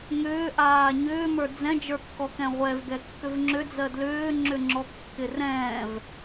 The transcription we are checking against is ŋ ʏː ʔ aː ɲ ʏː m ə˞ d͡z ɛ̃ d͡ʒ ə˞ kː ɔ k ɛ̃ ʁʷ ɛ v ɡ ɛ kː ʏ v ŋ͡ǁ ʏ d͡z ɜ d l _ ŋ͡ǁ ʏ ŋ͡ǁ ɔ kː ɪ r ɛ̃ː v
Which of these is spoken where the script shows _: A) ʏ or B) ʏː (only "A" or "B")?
B